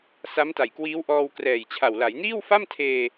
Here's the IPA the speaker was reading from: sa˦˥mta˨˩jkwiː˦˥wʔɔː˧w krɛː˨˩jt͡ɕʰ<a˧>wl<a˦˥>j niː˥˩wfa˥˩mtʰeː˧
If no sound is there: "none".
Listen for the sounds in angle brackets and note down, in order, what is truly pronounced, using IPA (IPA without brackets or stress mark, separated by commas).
a˨˩, a˩˦